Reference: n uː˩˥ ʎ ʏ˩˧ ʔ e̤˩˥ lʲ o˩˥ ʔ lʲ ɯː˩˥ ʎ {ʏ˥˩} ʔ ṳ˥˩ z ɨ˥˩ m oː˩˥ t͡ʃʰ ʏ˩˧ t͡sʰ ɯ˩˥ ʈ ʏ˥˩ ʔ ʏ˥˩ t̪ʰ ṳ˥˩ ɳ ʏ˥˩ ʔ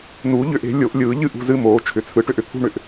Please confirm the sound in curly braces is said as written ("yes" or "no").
no